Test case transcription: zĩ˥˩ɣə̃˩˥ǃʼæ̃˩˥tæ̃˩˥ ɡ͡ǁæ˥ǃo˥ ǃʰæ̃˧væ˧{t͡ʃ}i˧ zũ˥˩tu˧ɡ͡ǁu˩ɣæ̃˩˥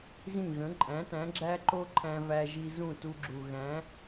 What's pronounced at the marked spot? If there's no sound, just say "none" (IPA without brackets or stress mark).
ʒ